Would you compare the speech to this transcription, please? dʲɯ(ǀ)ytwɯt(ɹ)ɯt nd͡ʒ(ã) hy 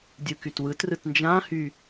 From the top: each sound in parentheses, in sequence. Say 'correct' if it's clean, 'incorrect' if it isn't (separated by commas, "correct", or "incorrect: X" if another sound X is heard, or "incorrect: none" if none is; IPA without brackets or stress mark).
incorrect: k, incorrect: r, correct